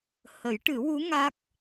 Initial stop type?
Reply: plain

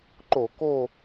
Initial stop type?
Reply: click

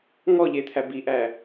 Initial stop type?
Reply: aspirated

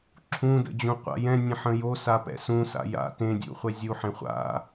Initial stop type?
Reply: click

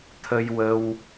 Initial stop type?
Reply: aspirated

